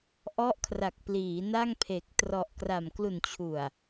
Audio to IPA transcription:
ʔɔ˦˥ʔkʰra˨˩k̚pliː˩˦ na˥˩ŋpʰe˨˩k̚ trɔ˨˩ʔkra˨˩m klu˨˩nt͡ɕʰu˨˩a̯

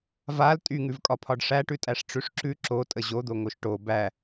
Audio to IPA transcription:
val tʼyŋʉvkʼɒpʰɒɖ ʂæʈʉtʼæʂ ʈ͡ʂʉʂǁʉ ǁo tʼəʑod̪oŋoʃ ʈo bæ

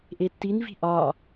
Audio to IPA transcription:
ʔetːinvi̤ ʔɒ

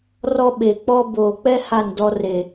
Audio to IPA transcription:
rɔ˦ɓe˨k͡pɔ˦ boː˨k͡pɛ˦ ha˦˨ndɔ˦re˨

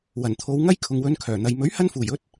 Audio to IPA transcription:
wɐ˨˩nt̪ʰo˨˧wŋɐ˥j kʰʊ˨ŋwɵ˨˧nkʰœː˨˩n̪ɐ˨j mɵ˨˥ɥhɐ˧nfuː˨˩jɵ˧t̚

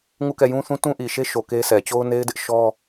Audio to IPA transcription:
ŋu˦˨kɛ˦˨jũ˦θũ˦ tũ˦ʔi˨ʃe˦ ʃo˨ ke˦sɛ˨ t͡ɕo˦ʊ̯ne˦ɪ̯dɪ˦ʔ ʃɔ˦

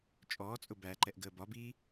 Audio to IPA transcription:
t͡ʃʼɔːt͡sʼʊ bæǃɛʔɡəː bɒbiː

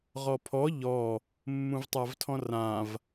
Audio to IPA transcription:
ʁɔpʰɔ ʎɔ | mːũvtˤavtʰɔ̃rãv

